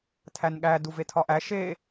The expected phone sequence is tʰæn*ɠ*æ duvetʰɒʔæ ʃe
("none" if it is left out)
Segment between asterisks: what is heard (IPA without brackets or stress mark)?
ɠ